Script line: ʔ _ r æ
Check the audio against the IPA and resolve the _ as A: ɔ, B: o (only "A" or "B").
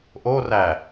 B